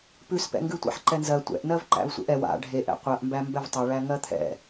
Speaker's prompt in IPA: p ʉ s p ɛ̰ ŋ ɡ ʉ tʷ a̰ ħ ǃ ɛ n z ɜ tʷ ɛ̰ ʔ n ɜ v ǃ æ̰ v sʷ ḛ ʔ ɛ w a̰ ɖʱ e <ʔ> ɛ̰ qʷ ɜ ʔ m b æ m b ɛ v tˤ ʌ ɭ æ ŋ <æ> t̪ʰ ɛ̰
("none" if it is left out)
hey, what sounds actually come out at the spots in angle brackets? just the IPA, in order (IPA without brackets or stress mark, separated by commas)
ʔ, ɜ